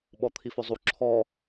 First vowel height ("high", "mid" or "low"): mid